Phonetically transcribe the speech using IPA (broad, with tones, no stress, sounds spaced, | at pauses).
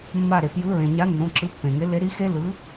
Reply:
mː a˧˩ ɾ e˩ p j ɯ˨˥ ɹ ẽ˩ ɲ a˨˥ nː õ˩˧˩ ǁ ɯ˨˥ pː ẽ˩ ŋ e˨˥ l e˨˥ ɾ i˨˥ x e˦˥ l ɯ˨˥